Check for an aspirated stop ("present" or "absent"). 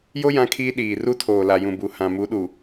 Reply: present